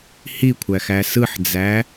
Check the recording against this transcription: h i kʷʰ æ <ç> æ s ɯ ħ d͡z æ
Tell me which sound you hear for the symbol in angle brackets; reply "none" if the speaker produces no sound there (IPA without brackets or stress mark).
x